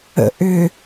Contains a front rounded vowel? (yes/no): yes